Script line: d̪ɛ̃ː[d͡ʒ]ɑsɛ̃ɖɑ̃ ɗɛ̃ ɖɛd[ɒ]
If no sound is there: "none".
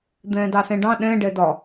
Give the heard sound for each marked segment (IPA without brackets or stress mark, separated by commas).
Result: d, ɒ